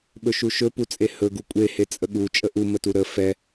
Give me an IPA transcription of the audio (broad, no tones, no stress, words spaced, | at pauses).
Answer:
ɓɵʃuʃɵ put͡sʼehɵ ɡukʷʼe het͡sʼəɠu t͡ʃʼəʔu mətuɾə fɛ